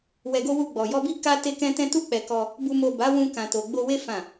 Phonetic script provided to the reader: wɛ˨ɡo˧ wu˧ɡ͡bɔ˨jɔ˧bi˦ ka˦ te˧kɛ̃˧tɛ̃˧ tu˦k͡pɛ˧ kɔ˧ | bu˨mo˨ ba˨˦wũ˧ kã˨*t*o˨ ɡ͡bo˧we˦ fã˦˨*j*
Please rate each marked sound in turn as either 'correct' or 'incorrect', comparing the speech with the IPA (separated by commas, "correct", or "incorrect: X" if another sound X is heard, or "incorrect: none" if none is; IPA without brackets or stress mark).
correct, incorrect: none